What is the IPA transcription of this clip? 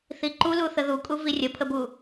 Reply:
θ i ǃ u l u θ ə ð u kʼ u v i rʲ ə pʰ ə b u

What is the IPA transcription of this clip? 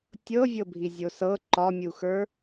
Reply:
tʲ ɤ vʲ ɤ bʱ i zʲ o s ɤ ǃ ɒ mʲ u x ə˞

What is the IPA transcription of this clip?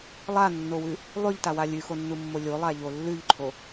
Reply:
lˠ a nː o w ʉ | lˠ ʉ ʎ t a w a lʲ ʉ x o nː u mː o lʲ o lˠ a ʎ o lː ʉ ʎ ǃʰ o

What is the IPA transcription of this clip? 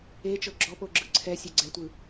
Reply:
e t͡ʃ ɤ ɡ͡ǁ ɔ p o ɡ͡ǁ ɯ ǀʰ ɛ sʲ ɛ ɡ͡ǀ ɛ tʷ ɯ

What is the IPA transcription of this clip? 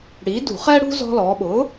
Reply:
ɽ iː˩˥ d ṳ˧˩˧ χ ɛ˧ ɽ ṳ˧ z ɔ̤˧ l ɔː˩˧ ɓ ʊː˩˥

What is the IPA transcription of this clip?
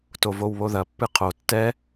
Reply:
t o v o w β o ð ɐ pː ɨ qʰ o tː ɛ

